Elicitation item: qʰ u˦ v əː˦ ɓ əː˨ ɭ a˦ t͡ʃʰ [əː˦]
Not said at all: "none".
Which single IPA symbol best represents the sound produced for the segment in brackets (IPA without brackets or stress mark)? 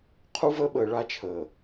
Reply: əː˨